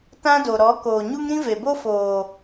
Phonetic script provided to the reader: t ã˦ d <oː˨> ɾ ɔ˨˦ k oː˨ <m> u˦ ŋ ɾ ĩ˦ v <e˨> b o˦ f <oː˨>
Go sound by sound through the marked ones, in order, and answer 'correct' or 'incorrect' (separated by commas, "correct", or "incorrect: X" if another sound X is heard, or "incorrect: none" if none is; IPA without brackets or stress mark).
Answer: incorrect: o˨, incorrect: ɲ, correct, correct